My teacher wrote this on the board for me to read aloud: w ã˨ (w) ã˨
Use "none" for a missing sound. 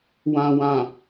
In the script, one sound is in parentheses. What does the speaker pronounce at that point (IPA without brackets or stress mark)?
w